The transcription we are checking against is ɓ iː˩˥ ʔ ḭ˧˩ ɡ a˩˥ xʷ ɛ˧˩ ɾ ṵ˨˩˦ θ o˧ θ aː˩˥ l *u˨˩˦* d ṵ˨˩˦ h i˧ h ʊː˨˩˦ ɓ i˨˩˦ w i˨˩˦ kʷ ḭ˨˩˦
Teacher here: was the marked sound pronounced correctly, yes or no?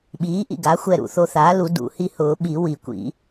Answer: yes